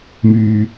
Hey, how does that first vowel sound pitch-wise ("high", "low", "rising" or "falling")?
low